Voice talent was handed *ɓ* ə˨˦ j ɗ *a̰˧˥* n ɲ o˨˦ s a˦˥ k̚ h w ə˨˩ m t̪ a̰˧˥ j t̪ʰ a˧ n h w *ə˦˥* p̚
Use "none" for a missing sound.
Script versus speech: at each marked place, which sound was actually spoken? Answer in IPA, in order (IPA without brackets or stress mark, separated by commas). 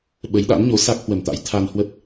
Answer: ɓ, a̰˧˥, ə˦˥